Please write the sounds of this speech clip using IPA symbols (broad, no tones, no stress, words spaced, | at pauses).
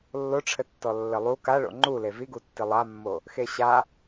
lːoʈ͡ʂʰɘtːɔ lːɘlˠu kaɭo̰ ŋ͡ǃule viɡutːi lˠamːo | xeɕa